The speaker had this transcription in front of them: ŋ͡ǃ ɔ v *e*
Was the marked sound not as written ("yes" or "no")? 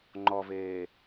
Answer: yes